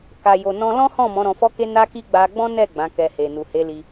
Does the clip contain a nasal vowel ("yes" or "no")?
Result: yes